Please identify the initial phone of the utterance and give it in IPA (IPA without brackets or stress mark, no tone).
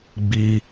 ɡ͡b